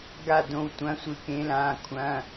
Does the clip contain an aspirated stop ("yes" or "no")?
yes